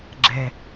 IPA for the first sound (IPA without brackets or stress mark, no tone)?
ɡ͡ǁ